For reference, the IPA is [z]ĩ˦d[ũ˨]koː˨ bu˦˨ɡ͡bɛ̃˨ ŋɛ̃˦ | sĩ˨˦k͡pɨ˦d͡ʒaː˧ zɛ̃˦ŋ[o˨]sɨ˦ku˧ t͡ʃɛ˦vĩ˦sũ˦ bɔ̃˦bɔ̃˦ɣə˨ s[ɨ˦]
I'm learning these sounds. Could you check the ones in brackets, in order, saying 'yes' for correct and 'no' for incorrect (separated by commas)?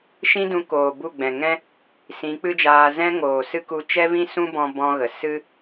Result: no, no, no, yes